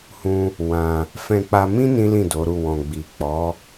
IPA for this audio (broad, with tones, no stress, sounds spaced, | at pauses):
h ũ˦ | w ã˧ | f ɛ̃˧ k͡p a˧ m ĩ˦ n ĩ˦ l ĩ˦˨ d o˨˦ ɾ u˦˨ w ɔ̃˨ ɡ͡b i˨ k͡p ɔ˨˦